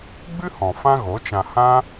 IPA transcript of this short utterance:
ɡ͡b ɨ˦ h ɔ̃˨ f ã˦ ɣ o˨˦ t͡ʃ ã˧ h ã˦

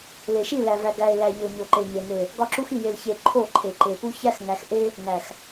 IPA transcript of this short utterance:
l e˨ ʃ i˦˨ l æ˨ v æ˨ ɡ æ˨ ɪ̯ l æ˨ ʎ o˨ ɲ o˨ ǃ e˨ ɲ e˨ n e˨ | ɡ ɒ˦ ǁ u˦ x i˨ j e˨ l ç e˨ ǃʰ o˦˨ ǃʰ e˨ ǃ e˨ p u˦ ç æ˦ x ŋ æ˨ x ʔ e˦ | ŋ æ˨ x

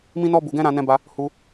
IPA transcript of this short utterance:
m ĩ˦ n ɔ˦ b u˧ ɡ ɛ̃˦ ɾ ã˦ n ɛ̃˦ b a˦ | h u˦

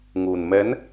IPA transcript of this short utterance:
ŋ u˨˩ n m ɛ˨˦ n

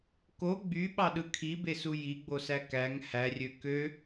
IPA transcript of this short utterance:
k o ɡ͡b y ɓ ɑ ɗ ɯ kʰ i b e s u j i ɡ͡b o s æ k æ ŋ h æ rʲ ø k ø

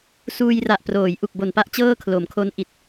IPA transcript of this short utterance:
s uː˧ j r a˨˩ ʔ p r oː˩˦ j ʔ u˨˩ k̚ b o˨˩ n p a˥˩ ʔ t͡ɕ ɤː˥˩ kʰ l o˩˦ m kʰ o˦˥ n ʔ i˨˩ t̚

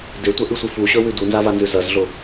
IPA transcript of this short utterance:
d e tʷ ɐ ʔ ɨ sʷ ɨ f u ɕ ɵ w ʉ d u n z a v a n z ʉ z ɐ z ɮ o

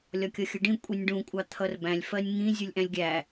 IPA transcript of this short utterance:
lʲ ɒ kʲ ʌ xʲ ə ɖ ĩ kʷʼ i nʲ ɖ ũ kʷʼ ɑ t̪ʰ ʌ r b æ̃ lʲ f ɜ nʲ ŋ ĩ zʲ u lʲ ʔ æ̃ lʲ ɡʲ æ

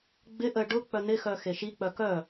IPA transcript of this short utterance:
ɡ͡b ɪ ʔ ə ɖ ʊ k͡p œ n̪ ɪ x œ x e ʃ i k͡p œ k œ

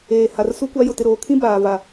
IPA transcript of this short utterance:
eː˨ h a˨ r s u˦ kʷ a˦ j ʊ˨ t ɪ˨ ɾ oː˨ kʰ ĩ˦ b aː˨ v a˨

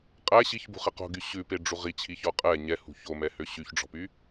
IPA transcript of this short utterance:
qʼ æ ɕ i ç b ṳ χ ɛ q o̤ ɡ y ɕ ʉ p e ɖ͡ʐ u ʁ i t͡ɕʰ i ç ɔ qʼ ɛ ɲ ɛ h ṳ ç o m ɛ h ø ɕ y ç ɖ͡ʐ ɔ̤ p y

